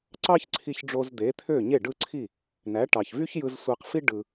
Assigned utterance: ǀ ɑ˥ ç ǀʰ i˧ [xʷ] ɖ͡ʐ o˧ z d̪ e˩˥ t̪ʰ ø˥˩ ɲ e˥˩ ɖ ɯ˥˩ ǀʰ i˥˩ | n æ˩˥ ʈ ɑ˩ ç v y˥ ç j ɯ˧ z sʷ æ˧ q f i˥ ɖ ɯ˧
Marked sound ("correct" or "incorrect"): incorrect